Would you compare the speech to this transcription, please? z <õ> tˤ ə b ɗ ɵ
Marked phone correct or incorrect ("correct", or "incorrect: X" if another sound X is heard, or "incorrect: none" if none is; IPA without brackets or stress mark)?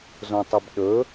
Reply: correct